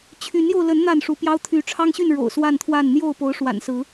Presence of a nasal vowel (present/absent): absent